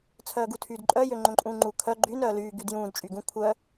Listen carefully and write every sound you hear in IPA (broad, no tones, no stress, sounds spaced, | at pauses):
t͡sʰ œː ɡ u tʰ yː d ǃʼ œ j ø ŋ͡ǃ õ ǃʼ ũː ŋ͡ǃ u kʰ œ ɡ͡ǃ y n œː l yː ɡ y d j ũː d t͡ʃʼ y ɡ ũ kʷʰ œ